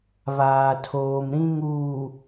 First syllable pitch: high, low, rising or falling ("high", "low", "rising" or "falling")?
low